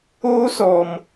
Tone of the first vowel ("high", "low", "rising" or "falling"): high